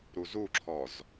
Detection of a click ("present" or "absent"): present